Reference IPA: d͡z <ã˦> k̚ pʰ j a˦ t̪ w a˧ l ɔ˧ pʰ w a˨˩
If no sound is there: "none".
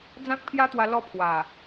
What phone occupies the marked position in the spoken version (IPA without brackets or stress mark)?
ã˦